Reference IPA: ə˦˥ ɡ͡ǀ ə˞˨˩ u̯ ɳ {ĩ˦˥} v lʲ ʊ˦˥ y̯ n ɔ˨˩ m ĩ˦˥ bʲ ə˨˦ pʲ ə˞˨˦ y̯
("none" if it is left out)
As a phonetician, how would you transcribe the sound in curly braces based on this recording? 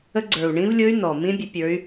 ĩ˦˥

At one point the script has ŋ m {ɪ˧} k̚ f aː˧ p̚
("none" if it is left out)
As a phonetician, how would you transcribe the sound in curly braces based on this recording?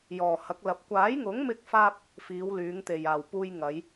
ɪ˧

